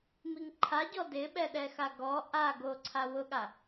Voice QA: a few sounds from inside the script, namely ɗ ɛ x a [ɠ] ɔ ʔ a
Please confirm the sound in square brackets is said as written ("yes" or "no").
no